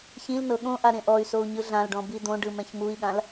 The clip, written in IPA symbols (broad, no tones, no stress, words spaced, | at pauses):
çĩlnɤ ɠõʔa ɾẽʔɔy̯sou̯ ɲɯɮãlɖɔ̃ bid̪õɖɯ mɛ̃çmui̯ɠãl